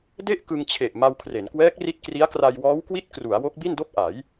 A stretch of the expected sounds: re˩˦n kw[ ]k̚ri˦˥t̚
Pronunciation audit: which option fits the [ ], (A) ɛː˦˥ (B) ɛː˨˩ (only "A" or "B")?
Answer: A